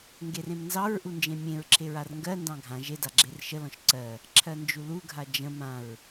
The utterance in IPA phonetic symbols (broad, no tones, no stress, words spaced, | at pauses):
ŋɡerẽmnzɑɹʔu nd͡ʒẽmʲẽɹǁʰe ɹarŋɡɜndɑ̃ ɡʱã ʒeda ɡ͡ǁerʃəlɔ̃ʃ ǀɜ | ǁʰɜnd͡ʒuluɡʱa d͡ʒə̃ mãɹ